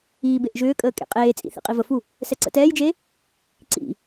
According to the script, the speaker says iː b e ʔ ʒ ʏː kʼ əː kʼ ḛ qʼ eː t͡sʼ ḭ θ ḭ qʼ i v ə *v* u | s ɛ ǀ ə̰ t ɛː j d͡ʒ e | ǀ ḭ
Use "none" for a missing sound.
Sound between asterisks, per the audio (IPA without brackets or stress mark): f